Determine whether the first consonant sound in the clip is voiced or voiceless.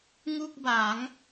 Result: voiced